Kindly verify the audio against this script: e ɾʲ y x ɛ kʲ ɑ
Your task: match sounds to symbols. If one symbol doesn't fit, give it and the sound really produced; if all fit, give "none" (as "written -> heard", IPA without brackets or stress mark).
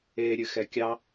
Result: y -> ɨ